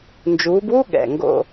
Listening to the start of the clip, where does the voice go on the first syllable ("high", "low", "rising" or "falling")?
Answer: rising